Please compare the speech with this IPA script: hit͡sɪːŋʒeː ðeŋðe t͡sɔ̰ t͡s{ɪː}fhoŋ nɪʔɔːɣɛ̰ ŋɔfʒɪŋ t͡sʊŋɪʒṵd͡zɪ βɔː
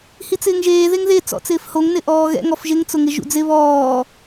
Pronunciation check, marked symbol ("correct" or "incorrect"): correct